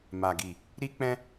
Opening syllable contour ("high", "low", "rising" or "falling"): low